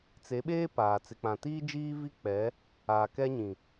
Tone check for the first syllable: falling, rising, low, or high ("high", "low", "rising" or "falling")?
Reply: rising